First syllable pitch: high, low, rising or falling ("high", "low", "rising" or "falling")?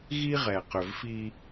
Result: high